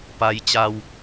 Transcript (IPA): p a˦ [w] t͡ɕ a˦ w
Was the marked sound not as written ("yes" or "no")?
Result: yes